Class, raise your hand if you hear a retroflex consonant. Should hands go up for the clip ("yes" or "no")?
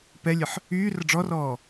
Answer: yes